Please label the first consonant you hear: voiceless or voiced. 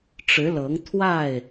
voiceless